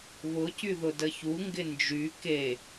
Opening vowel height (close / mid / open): close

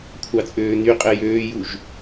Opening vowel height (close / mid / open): open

